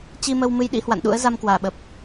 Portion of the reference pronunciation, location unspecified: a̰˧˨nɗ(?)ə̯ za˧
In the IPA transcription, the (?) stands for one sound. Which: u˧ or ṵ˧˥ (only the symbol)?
ṵ˧˥